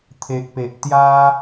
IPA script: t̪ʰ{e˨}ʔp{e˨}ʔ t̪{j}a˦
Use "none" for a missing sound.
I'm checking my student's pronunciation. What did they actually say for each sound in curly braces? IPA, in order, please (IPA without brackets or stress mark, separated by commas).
e˨, e˨, j